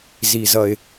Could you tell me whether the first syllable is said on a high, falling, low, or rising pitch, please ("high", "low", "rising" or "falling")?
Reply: low